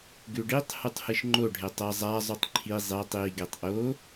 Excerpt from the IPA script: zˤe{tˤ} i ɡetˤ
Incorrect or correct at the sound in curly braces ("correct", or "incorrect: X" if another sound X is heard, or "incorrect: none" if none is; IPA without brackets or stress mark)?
correct